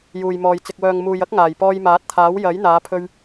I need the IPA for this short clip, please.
j uː˨ j m ɔː˨ j t͡s ɪ˨ k̚ w œː˨ ŋ m uː˨ j ɐ˥ k̚ ŋ aː˨˩ j p ɔː˧ j m aː˨˥ t̚ t̪ʰ aː˨˥ w j ɐ˨˥ j n̪ aː˨˧ pʰ ɵ˧ ɥ

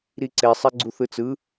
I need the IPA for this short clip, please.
ɾ i ǀ e sˤ e ɡ͡ǀ u θ ɯ t͡s ɯ

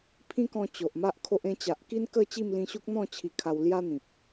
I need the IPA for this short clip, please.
pʰ ĩ˦ k ɔ̃˧ t͡ɕ o˨ ʔ m a˦ ʔ kʰ o˦ ʔ ẽ˧ t͡ɕ a˨ ʔ k i˦ n k ə˥˧ t͡ɕ i˥˧ m l ĩ˧ ɕ u˦ k̚ n̪ ɔ̃˥˧ t͡ɕʰ i˧ kʰ a˧ w l j a˦ n̪ ĩ˨ p̚

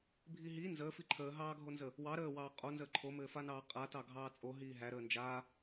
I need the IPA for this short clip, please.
bʱ i ɦ i n z əː f i ǃʰ əː ɦ ɑː ɡʱ o n z ə | w ɑ ɾ əː w ɑː qʼ o n z əː ǃʰ o m ɘː f a n ɑː qʼ a t ɑ ɡʱ ɑː t͡sʼ o ɦ iː ɦ æ ɾ əː n d͡ʒ a

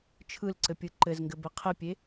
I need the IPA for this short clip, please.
t͡ʃʰ ɯ l ǀ ɘ pʲ ɯ ǃ ɘ z ŋ ɡ ɘ b ɘ qʰ ɘ pʲ e

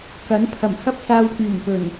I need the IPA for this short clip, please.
k ɐ˨˥ n pʰ ɐ˨˩ m h ɐ˥ p̚ s aː˧ w k yː˨˩ n p ɵ˨˩ n

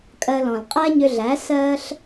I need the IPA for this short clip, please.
kʼ ɜ˧ l ɔ̃˨ l qʼ æ˦ ɲ ʏ˧ ɮ æ˨˦ s ɜ˧ ɬ

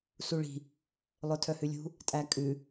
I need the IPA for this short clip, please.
s u ɭ i̤ | lˠ œ tʰ œ h ʉ lʲ ṳ | tʼ æ kʼ ʉ

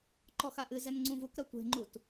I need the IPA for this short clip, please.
ǃ ɔ x a ʔ ɨ z ɛ n ŋ͡ǀ ũ v u k ɾ ɐ tʷ e̤ ŋ͡ǃ u t

